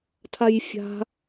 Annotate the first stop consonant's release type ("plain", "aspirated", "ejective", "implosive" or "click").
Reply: aspirated